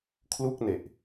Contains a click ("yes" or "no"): no